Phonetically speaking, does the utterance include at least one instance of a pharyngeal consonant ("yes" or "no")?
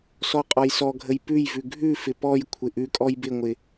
no